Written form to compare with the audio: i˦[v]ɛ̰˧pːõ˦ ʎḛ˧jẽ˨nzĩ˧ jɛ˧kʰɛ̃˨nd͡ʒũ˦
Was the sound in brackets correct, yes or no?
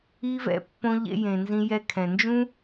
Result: yes